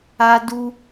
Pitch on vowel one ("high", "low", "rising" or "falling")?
high